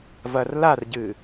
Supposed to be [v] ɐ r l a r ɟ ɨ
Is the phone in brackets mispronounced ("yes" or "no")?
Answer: no